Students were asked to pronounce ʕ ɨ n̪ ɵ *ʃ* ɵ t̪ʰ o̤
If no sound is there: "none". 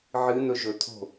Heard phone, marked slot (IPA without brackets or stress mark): ʒ